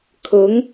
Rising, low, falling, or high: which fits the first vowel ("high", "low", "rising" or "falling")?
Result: rising